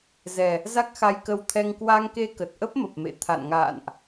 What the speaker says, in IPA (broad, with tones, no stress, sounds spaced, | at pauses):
z ɛ˨˩ | z a˦˥ k̚ x a˧ j k ə˧ w t̪ʰ ɛ˧ ŋ k w a˧ ŋ k e˧ k ə˨˩ t̚ ʔ ə˦˥ p̚ m ə˨˩ p̚ m ḛ˧˨ t̪ʰ a̰˧˨ n ŋ a̰ː˧˨ n ʔ